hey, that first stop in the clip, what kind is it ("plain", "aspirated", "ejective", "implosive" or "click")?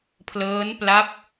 aspirated